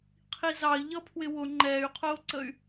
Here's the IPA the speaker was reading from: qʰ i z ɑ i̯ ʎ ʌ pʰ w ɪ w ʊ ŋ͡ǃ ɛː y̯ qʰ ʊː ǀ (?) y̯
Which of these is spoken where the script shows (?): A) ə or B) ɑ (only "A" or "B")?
A